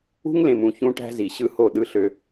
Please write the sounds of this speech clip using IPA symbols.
ṳ˦ ŋ l ẽ˨ m ũ˨ ç ũ˦ ʈ æ̤˦ z i˨ ɕ ɯ˦ h o˦˨ ɗ ɯ˦ ɬ ø˦

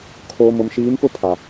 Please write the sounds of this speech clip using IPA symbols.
kʰ oː˨ m ʊ˨ m ʃ iː˨˦ m p ʊ˦ pʰ a˨

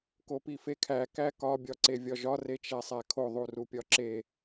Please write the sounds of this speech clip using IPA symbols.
k o p i f e kʰ æ k æ k ɒ bʲ ɒ ǀ e vʲ ɒ ʒ ɒ r e t͡ʃ æ sˤ æ kʰ o ðˤ u r u pʲ ɒ ǁ e

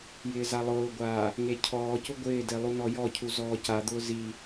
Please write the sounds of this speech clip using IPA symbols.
j ɪː z a lˠ ʊː ɡʷ aː | ŋ e cʰ ɔː c ʊ ɡʷ ɪː d e lˠ u n ɔ j ɔ cʰ u z ɔː c a d̪ ʊː z i

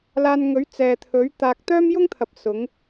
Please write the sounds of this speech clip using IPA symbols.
l aː˧ n ŋ ɵ˨˥ ɥ t͡s ɛː˨ t̪ʰ ɵ˨˥ ɥ t̪ aː˨ k̚ t̪ œː˥ m j ʊ˥ ŋ t̪ʰ ɐ˨ p̚ s ʊ˨˥ ŋ

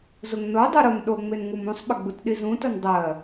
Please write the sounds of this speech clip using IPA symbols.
z ʊ ŋ n o dˤ u ɾ ʊ n ɗ o ŋ͡m e n ŋ u m ũ sˤ ɓ ə ɡ͡b u t ɗ i z ũ t ʊ n dˤ ɜ

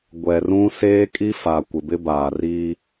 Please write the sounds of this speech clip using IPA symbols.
ɡʷ ɛ˨ r ũ˦ s eː˦ kʼ i˦ f a˨ kʷ ɪ˨ b ɪ˦ b aː˨ r iː˦

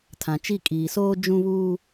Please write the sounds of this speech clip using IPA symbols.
tʰ ã˨ t͡ʃ i˦˨ kʼ iː˨ s oː˦ d͡ʒ ũ˦ β uː˦

